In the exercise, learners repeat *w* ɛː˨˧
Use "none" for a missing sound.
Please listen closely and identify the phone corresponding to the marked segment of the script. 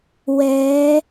w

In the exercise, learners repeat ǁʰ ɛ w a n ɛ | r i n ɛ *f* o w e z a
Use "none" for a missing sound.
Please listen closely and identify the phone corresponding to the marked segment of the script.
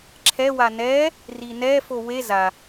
f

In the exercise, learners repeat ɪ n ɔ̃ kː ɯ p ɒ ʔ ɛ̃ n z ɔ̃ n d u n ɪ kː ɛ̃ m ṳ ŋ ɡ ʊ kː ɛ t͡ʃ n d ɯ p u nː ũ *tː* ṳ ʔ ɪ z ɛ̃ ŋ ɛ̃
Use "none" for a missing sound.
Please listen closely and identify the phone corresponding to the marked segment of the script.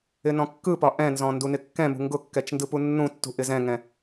tː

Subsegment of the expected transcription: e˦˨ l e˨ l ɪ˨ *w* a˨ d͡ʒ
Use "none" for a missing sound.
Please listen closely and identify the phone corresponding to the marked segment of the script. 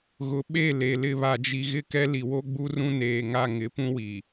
β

